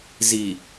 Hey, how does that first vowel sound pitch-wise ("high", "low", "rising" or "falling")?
low